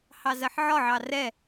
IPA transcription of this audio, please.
h ɑ z ɜ ħ ʕ ɒ ʕ ɑ r ɛ

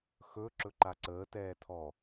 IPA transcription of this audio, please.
x ɵ ǁ ɵ ǃ a ǀ əː t ɛː tʰ ɔ

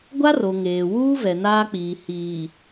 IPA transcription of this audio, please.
ɡʷ a˦ r o˨ ŋ eː˨ w uː˦ v ɛ˨ n aː˦ k͡p iː˨ h iː˨

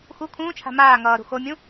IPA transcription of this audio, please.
x u kʰ ũː t͡ʃʰ a̤ m aː ŋ ʌː ɾ ṳ x o mʲ ũ

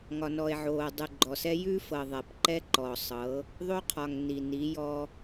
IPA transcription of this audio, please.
ŋ ɒ˨ n ɔ˨ e̯ ʕ oː˨ dˤ ʉ˨ ɡ͡ǃ ɔ˨ s ɛ˦ j ʉ˦ f ɤ˨ ðˤ ɛ˨ p ǃ ɛ˦ ǃ ɔ˨ sˤ ɤ˨˦ | ðˤ o˦ qʰ ɒ˨ ŋ n i˨ n i˨˦ j ɔ˦

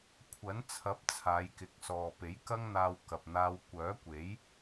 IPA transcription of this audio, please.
kʷʰ ɐ˨˥ n t͡sʰ ɐ˨˥ p̚ t͡sʰ aː˨˧ j k ɪ˨ k̚ s ɔː˨ p e˨˥ j k ɐ˥ ŋ n̪ aː˧ w k ɐ˨ p̚ n̪ aː˧ w kʷ œː˨˥ kʷ e˨˥ j

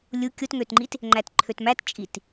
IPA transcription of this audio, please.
lʲ u kʲ o t ŋ ø t ŋ͡ǃ i t | ŋ͡ǃ æ t ǃʰ ø t m æ t t͡ʃʼ i t

